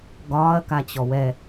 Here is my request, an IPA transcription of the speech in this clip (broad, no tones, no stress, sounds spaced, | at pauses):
ɡ ɒː ɐ̯ k a t͡ɕ ɔ w ɛ